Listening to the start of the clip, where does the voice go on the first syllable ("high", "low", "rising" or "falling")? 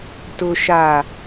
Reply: low